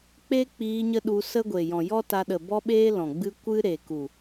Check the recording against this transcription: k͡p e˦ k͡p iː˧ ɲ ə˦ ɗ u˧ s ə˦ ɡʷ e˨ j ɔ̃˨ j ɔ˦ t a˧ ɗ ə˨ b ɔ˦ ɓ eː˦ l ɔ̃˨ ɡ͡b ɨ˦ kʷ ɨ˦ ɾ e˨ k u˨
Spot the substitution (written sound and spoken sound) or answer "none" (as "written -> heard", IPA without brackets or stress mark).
none